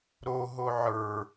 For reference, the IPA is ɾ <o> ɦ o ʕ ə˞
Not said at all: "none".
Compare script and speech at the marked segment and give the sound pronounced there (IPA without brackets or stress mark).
o